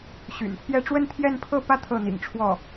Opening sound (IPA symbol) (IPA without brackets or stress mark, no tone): ɕ